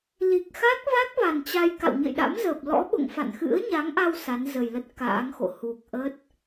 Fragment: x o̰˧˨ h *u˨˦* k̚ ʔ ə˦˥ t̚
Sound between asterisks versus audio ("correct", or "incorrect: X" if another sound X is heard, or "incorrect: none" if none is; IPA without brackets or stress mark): incorrect: u˨˩